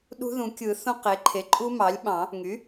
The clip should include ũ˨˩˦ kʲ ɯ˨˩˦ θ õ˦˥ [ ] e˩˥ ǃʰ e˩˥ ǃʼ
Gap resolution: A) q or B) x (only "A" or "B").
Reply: A